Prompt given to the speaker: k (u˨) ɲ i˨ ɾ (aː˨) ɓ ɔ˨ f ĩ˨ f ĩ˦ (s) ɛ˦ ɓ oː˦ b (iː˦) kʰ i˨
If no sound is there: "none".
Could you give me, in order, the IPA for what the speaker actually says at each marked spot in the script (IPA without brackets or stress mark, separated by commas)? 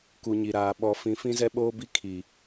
u˨, aː˨, z, i˦